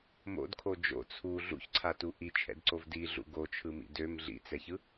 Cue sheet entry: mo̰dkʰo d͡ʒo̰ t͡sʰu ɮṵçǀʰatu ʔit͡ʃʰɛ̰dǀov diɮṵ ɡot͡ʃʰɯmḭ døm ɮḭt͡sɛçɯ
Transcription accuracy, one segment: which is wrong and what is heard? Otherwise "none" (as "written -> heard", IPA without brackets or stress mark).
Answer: none